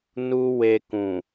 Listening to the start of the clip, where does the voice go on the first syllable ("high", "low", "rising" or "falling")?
high